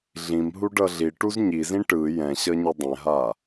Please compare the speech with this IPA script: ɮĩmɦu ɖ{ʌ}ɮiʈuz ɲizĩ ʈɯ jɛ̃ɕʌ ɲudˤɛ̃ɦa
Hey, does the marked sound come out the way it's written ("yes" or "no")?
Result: yes